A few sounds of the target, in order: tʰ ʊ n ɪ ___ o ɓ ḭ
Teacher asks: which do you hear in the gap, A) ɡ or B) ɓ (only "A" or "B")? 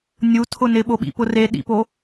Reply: B